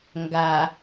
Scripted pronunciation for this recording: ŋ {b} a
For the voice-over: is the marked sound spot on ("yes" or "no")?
no